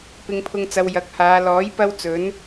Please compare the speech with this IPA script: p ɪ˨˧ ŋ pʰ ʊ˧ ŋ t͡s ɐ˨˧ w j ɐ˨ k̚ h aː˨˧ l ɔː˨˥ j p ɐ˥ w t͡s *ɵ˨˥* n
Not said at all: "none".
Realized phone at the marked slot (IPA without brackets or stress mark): ɵ˨˥